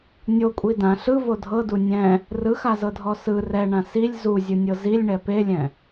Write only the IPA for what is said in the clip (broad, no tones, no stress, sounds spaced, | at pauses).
nʲ o kʷʼ i d ã ɬ ɯ v o dʱ ɤ d u nʲ ɛ̃ | r ɯ x a z ɤ dʱ ɔ s ɯ r ɛ ɳ ã s i lʲ z u zʲ ɯ nʲ ɤ z i lʲ ɳ ɛ p e lʲ ɛ̃